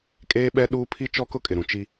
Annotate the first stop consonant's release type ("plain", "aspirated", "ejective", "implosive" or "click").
ejective